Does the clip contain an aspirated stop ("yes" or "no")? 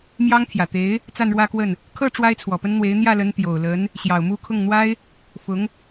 yes